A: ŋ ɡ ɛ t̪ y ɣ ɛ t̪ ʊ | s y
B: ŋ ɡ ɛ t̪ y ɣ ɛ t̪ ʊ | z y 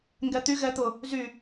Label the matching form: B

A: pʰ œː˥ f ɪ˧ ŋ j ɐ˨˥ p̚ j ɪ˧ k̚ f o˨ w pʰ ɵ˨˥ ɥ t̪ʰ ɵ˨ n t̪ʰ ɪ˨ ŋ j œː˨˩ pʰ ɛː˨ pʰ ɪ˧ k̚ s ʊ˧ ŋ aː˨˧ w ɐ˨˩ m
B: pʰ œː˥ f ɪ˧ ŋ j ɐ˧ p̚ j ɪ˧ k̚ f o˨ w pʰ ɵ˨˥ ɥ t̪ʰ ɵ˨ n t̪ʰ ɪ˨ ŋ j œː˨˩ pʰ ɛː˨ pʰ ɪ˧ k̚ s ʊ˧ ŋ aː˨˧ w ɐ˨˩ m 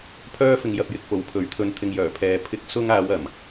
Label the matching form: B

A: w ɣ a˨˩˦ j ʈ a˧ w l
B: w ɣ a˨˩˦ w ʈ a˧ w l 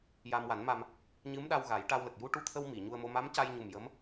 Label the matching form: A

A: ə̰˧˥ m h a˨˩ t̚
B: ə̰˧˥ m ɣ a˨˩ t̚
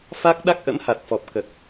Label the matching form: A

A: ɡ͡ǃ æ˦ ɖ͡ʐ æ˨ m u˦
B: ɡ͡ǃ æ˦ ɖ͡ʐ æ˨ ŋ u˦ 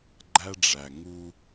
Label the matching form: B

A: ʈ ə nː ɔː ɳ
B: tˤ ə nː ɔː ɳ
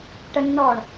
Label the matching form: A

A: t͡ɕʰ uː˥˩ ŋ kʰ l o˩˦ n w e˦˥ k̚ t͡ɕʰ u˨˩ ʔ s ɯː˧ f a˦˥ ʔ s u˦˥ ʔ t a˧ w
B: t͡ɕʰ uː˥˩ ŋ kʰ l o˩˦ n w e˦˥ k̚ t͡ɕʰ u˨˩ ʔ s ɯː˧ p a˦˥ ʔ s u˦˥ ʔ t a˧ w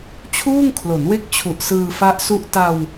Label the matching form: A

